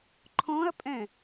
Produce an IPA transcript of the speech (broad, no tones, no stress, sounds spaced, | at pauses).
ǃʰ ɔ̃ ɐ̯ pʼ ɛ̃